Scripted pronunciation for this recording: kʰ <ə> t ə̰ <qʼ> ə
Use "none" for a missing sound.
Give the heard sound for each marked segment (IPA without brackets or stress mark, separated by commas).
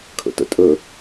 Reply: ə̰, tʼ